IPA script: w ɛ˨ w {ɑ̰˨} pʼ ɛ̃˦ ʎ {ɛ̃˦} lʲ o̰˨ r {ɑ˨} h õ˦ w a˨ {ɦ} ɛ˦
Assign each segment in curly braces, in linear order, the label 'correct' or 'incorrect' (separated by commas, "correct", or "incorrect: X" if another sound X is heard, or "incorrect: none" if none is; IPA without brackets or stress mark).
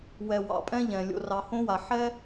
correct, incorrect: ɛ̃˨, correct, incorrect: ħ